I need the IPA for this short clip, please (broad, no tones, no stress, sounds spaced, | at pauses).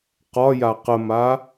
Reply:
q ɒ j a q ə m a